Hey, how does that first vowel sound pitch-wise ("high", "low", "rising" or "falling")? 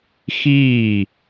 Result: falling